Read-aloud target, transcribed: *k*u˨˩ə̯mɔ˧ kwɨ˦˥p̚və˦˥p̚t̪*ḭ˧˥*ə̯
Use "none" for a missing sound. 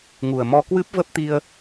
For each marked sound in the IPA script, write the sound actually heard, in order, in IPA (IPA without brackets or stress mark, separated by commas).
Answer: ŋ, i˧